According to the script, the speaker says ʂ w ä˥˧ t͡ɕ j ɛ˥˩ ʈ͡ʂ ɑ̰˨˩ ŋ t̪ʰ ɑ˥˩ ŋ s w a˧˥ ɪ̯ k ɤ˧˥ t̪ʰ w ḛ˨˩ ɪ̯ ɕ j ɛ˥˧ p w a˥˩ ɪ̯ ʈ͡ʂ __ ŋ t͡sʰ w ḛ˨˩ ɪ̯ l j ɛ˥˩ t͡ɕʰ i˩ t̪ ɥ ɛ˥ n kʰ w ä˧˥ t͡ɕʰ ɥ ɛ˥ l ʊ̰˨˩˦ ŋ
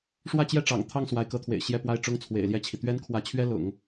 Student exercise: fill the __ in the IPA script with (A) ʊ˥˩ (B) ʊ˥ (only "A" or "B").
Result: B